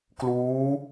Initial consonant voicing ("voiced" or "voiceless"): voiceless